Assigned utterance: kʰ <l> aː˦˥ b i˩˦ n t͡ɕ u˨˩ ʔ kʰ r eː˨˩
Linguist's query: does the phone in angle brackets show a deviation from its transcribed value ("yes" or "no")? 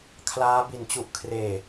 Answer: no